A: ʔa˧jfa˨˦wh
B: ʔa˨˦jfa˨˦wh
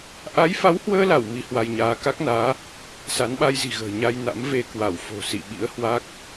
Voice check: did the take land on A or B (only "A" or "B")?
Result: B